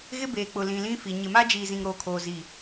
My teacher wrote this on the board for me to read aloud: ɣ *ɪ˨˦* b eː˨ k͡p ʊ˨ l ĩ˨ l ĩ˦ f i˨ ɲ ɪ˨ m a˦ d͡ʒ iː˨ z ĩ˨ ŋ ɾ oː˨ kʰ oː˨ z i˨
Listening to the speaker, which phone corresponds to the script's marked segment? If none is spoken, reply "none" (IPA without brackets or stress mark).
ɪ˦